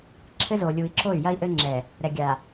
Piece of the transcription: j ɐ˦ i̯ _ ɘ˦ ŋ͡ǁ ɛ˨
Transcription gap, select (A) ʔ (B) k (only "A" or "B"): A